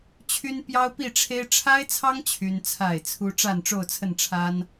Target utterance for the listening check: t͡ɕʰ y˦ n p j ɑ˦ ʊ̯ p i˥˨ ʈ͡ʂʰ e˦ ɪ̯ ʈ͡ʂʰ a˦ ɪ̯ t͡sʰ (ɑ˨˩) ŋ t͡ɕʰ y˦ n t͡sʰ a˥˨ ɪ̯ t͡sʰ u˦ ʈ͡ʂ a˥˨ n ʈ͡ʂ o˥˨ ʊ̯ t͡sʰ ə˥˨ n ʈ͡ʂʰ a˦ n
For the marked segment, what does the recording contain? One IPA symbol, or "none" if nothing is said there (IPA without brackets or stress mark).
ɑ˦